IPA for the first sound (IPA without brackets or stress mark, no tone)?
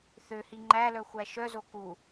θ